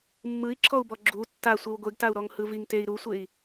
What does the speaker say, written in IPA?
mː ɯ i̯ ǁʰ ɔ u̯ b ɔ ɡ͡ǁ u tː a sʷ e w ɡʷ e ɡ t a u̯ ɾ ɔ ŋ h ɯ v i ŋ t e i̯ ɾ u sʷ e i̯

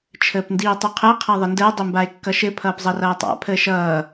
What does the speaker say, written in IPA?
t͡ʃʰ əː p n d iː tˤ u qʰ ɛ qʰ a ðˤ ɘ n d əː dˤ ɘ m b a e̯ kː ʌ ʃ ɘ pʰ ʌː p zˤ ʌ r ʌː tˤ a̰ pʰ əː ʃ ʌː

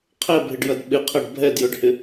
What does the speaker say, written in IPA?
qʰ ɛ bʱ ɪ ɖ j ɐ d ɓ ɪ qʰ ɐ ɖ bʱ ɛ d j ɵ ɖ h ɪ

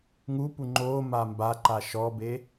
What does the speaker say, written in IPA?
ŋ u p u ŋ͡ǃ o m a m b a ǃ a ʃ ɔ b e

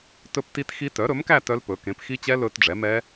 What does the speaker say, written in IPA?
t ɵ˥˧ p t i˦˥ t x i˦˥ t œ˩˥ ɾ ɵ˩˥ m k æ˥˧ t œ˦˥ l p ɵ˩˥ k ẽ˩˥ p x i˦˥ t͡ɕ ɛ˦˥ l ɵ˦˥ t ɖ͡ʐ ɛ˩˥ m ɛ˦˥

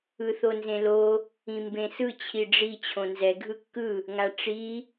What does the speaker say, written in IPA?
ɯ θ o n z ẽ l o | ĩ m b ẽ s ɯ t͡ɕʰ i ɖ͡ʐ i t͡ɕʰ õ n z ɛ ɡʱ ɯ kː ɯ | ŋ a ʈ͡ʂ i

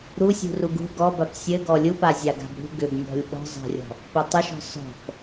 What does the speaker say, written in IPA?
ɾ u sʲ ṳ r u ɡ ṳ ɡ ɔ b a p sʲ ɘ ɡ ɔ lʲ u p a zʲ a ɡ a̤ b ɾ ṳ ɡ ʏ b nʲ ɔ̤ lʲ ɓ ɔ̤ zˤ a̤ rʲ ɔ̤ | p ɘ tˤ ʏ ʃ ɔ̤ s ɔ̤ p

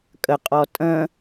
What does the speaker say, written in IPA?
kʼ ə qʼ ɔ tʼ ə̃

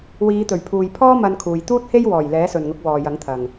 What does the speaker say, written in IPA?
w iː˨˧ t̪ ɵ˨˩ ɥ pʰ uː˨ j pʰ ɔː˥ m ɐ˧ n kʰ uː˨ j t̪ uː˥ t̚ h e˥ j w ɔː˨˩ j l ɛː˨˥ s ɵ˨ n ŋ ʊ˨˥ k̚ w ɔː˨ j ɐ˨˥ ŋ t̪ʰ ɐ˨ ŋ

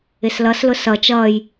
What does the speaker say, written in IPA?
ɪ s l ʌ s l ʊ s ʌ t͡ʃ ʌː j

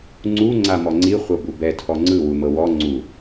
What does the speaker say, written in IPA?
ŋ͡ǀ u ŋ͡ǀ a m ɔ ŋ͡ǀ i χʷ ɤ b u b ɛ tʰ ɔ ŋ͡ǀ ɯ w u m ɤ w ɔ ŋ͡ǀ u

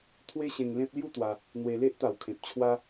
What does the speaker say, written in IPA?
t̪ʰ w e˦ ɕ ẽ˧ ŋ l ẽ˦ p̚ l j u˥˧ t̪ w a˧ | n̪ w e˧ l e˦ ʔ t̪ a˨˩ w kʰ ẽ˨ p̚ t͡ɕʰ w a˦

